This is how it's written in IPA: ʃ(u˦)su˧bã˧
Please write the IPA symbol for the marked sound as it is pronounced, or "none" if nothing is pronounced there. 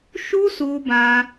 u˦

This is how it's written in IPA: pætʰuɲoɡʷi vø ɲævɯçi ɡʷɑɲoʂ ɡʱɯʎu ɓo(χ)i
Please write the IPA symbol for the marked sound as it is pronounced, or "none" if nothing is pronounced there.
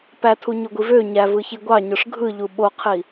qʰ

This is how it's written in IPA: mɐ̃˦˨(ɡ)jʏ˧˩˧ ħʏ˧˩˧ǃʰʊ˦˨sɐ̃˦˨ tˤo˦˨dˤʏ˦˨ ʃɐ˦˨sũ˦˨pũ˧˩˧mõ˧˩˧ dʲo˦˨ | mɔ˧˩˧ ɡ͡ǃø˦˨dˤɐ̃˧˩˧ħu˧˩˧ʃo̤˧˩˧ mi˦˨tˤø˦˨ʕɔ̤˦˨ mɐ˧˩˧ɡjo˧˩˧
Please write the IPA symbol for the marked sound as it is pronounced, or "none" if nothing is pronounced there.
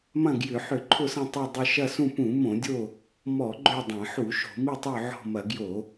ɡ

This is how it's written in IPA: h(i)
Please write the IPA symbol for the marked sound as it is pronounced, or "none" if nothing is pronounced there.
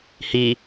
i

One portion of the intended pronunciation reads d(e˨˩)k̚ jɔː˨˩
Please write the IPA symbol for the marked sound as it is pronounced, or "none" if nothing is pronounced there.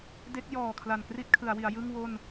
e˦˥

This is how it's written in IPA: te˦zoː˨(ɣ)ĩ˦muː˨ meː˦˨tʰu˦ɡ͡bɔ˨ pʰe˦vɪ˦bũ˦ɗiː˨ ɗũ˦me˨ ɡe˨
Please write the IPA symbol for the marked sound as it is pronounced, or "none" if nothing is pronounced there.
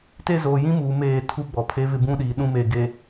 j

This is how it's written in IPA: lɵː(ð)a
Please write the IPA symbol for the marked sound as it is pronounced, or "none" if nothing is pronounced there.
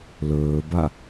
b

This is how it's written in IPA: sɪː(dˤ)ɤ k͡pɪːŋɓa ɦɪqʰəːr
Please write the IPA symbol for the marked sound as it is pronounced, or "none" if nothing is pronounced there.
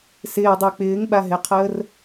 dˤ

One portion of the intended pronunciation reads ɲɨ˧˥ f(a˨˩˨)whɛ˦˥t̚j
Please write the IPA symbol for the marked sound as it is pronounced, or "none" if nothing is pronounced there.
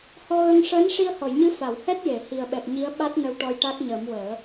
a˨˩˨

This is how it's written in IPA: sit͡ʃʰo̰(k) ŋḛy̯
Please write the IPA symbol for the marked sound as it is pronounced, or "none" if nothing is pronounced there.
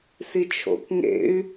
k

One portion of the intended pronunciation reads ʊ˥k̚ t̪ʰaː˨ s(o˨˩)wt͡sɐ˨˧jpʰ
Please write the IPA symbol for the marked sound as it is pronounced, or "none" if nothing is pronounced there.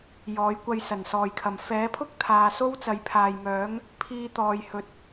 o˥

